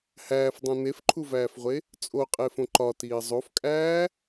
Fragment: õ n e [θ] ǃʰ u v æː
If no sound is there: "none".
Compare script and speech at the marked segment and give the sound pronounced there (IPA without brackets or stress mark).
f